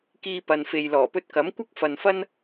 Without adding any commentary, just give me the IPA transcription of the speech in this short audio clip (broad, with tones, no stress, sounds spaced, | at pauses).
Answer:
k iː˧ p ɐ˨ n f e˨ j l ɔː˨˩ p ɵ˧ t̚ k ɐ˨˥ m kʷ ɐ˥ k̚ f ɐ˨ n f ɐ˥ n